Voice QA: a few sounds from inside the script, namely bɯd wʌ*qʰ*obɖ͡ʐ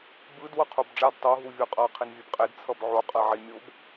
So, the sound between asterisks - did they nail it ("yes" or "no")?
yes